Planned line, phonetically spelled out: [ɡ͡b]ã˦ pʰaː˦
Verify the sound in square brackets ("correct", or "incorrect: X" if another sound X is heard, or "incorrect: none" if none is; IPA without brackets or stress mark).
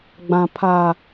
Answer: correct